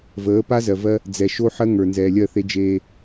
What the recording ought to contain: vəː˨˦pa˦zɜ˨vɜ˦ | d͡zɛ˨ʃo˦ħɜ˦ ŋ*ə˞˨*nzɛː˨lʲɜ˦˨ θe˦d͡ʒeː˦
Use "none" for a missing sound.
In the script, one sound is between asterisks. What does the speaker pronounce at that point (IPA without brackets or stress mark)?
ə˞˨